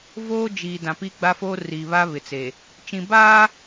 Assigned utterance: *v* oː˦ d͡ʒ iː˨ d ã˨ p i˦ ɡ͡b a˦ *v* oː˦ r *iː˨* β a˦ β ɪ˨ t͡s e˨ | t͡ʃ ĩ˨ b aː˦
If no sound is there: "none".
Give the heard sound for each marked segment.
v, f, iː˨

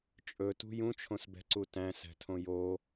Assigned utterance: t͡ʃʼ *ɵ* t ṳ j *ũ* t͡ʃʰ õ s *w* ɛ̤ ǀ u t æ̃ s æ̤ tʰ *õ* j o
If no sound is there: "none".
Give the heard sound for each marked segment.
ɵ, ũ, b, õ

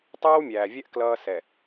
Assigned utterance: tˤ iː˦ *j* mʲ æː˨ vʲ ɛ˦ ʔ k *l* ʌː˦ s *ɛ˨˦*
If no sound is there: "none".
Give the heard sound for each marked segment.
w, l, ɛ˨

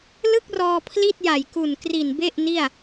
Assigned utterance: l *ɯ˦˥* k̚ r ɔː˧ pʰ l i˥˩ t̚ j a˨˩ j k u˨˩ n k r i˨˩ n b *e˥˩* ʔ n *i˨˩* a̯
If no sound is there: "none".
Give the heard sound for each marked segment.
ɯ˥˩, e˥˩, i˥˩

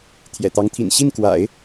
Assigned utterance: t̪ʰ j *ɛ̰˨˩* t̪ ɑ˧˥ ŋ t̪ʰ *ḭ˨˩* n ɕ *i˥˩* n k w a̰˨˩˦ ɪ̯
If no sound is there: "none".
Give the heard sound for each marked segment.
ɛ̰˨˩, ḭ˨˩, i˥˩

